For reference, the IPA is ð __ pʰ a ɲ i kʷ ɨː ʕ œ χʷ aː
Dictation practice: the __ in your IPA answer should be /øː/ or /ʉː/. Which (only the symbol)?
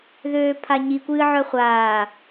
øː